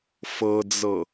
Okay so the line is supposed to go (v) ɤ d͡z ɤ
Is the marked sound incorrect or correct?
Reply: incorrect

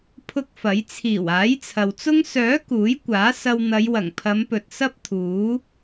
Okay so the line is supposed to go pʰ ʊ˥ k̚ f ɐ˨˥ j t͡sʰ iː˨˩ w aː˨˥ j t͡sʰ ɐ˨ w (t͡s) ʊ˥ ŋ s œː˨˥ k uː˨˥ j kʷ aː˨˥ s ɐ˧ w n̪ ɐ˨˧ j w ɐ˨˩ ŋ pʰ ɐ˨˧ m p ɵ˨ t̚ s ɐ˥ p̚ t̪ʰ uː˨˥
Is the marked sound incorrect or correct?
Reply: correct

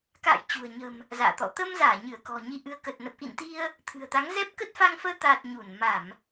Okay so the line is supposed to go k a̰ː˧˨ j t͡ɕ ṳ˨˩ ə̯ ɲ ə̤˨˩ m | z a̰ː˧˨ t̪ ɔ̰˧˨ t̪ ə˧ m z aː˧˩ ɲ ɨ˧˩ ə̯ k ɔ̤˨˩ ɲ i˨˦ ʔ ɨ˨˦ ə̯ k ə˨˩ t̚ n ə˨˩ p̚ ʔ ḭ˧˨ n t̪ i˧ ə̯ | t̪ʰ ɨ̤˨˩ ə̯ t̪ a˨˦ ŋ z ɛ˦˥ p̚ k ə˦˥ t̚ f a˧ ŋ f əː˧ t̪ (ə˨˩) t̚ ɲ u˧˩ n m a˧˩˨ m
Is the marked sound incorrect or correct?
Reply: incorrect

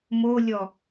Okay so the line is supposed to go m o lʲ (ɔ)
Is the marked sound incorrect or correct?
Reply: correct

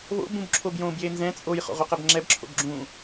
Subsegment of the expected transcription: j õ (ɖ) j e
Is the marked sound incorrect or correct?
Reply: incorrect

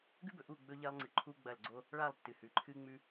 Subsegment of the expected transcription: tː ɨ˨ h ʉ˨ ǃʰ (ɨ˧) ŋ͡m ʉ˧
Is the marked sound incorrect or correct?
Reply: correct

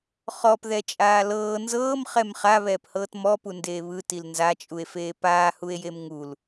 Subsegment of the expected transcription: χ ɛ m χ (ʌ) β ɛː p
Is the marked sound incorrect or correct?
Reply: incorrect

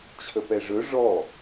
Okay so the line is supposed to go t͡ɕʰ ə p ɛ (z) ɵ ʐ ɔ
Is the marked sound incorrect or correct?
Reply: incorrect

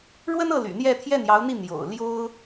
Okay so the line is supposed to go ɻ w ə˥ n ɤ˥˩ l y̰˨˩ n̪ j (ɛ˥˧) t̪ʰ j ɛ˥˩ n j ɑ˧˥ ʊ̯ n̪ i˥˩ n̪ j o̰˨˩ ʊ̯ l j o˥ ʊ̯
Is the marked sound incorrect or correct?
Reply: correct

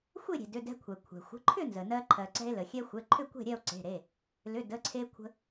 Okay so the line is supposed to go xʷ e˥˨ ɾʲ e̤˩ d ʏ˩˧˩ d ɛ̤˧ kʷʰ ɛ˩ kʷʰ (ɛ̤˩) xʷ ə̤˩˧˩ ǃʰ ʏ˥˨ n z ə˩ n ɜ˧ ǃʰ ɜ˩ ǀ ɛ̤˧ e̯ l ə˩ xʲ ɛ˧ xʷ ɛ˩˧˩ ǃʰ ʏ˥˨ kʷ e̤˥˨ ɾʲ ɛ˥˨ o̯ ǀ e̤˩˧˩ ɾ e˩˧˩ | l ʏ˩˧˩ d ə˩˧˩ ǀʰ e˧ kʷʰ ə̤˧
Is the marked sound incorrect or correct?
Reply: correct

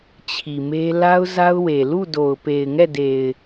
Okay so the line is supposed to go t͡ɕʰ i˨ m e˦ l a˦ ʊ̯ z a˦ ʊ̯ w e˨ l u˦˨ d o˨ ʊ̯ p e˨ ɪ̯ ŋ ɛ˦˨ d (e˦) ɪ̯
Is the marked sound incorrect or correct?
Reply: incorrect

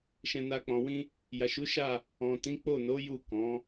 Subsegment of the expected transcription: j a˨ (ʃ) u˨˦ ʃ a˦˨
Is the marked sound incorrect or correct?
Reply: correct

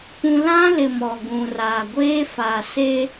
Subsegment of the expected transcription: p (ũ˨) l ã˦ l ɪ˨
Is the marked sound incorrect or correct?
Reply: incorrect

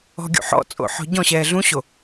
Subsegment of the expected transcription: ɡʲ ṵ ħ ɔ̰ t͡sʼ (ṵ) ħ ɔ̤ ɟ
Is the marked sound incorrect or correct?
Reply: incorrect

